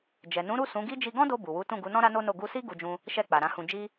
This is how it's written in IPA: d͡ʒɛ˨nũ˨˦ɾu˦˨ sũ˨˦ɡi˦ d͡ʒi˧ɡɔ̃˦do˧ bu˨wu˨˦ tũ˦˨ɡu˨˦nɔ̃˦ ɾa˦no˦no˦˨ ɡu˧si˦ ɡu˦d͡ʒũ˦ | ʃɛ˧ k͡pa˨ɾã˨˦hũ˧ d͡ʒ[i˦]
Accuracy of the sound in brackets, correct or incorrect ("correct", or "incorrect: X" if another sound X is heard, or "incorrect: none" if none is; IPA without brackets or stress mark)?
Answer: correct